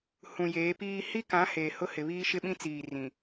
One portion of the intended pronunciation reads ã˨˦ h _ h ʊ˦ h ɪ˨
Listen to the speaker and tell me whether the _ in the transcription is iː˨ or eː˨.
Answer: eː˨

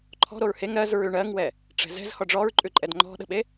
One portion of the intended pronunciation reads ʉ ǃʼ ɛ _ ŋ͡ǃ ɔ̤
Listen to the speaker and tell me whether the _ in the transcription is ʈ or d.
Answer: d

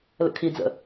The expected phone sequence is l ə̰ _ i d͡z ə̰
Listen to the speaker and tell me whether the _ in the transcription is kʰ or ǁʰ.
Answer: kʰ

